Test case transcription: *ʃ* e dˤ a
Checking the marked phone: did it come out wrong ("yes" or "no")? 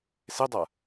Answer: yes